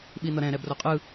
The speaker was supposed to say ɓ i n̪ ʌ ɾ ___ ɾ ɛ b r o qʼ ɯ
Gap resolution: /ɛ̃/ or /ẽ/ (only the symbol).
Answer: ɛ̃